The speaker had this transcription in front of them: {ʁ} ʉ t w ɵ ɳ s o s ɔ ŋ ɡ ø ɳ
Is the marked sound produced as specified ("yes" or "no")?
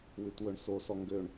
no